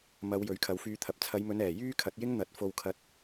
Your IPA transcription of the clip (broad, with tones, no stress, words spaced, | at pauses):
mɐ˨˧w jɵ˨˥ɥkʰɐ˨˧wfyː˧t̪ʰɐ˨p̚ t͡sʰɐ˨˧jmɵ˨˧nɛː˨˩ jyː˥kʰɐ˨˥t̚jɪ˥ŋn̪ɐ˨˥t̚ fo˧wkʰɐ˧t̚